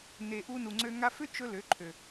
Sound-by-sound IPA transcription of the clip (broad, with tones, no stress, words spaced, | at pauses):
ne˨ʔu˧nu˨ŋ͡ǀø˧ ŋa˧fʏ˦t͡ʃɵ˧ lø˨˦ǃʰø˨